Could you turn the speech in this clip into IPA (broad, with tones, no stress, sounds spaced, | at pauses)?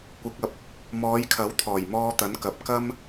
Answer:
kʷ ɪ˨˥ k̚ ɐ˨ p̚ | m ɔː˨˧ j kʰ ɐ˨˥ w t̪ʰ ɔː˨˩ j m ɔː˧ t̪ ɐ˨˥ n k ɐ˨ p̚ k ɐ˥ m